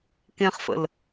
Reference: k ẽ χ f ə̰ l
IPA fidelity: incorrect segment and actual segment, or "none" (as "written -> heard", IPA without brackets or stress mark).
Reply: none